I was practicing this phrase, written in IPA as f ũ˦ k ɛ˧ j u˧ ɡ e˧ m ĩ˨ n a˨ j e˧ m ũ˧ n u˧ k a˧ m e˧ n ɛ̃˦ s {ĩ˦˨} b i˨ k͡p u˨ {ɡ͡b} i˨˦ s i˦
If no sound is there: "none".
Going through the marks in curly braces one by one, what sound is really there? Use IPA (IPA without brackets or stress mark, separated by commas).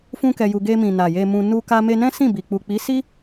ĩ˦˨, k͡p